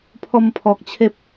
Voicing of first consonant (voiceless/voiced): voiceless